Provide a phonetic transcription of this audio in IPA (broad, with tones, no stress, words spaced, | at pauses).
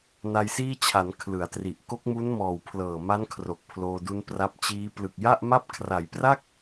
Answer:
na˧jsiː˥˩t͡ɕʰa˩˦n kʰlɯ˩˦a̯tri˨˩ʔ ko˦˥k̚mu˦˥nmɔː˨˩wpʰlɤː˨˩ ma˦˥nkʰro˨˩k̚ pʰloː˧du˦˥npra˦˥p̚ t͡ɕiː˦˥ plɯ˨˩k̚ja˥˩ʔma˥˩p̚ kʰra˩˦jpra˥˩k̚